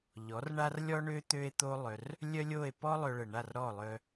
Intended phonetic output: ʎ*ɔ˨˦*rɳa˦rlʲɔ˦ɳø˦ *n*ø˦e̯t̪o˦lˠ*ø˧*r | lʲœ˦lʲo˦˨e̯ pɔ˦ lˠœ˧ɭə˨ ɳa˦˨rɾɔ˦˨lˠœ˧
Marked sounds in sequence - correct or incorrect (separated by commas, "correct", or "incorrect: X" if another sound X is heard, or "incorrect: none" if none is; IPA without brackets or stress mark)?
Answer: correct, incorrect: t̪, incorrect: œ˧